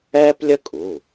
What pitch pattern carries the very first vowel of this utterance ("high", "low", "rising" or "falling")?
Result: high